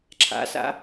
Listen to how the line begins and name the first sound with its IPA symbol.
ǁʰ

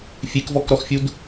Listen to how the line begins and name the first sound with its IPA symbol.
fʲ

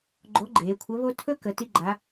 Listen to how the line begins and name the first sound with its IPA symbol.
ɡ͡ǃ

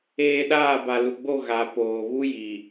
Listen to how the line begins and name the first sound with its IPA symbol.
eː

